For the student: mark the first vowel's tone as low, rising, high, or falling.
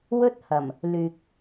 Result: high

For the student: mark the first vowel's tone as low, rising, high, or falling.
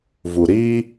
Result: low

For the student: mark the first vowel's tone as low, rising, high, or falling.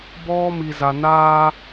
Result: high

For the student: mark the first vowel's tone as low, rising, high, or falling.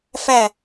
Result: falling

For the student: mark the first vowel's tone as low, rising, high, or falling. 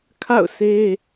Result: falling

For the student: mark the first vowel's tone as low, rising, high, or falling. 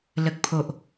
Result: low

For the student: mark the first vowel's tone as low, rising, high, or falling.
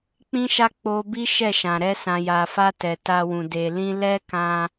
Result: high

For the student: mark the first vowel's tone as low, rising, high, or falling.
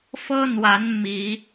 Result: high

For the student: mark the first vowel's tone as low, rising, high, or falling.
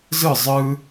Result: falling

